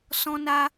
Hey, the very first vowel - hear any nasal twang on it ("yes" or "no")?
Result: yes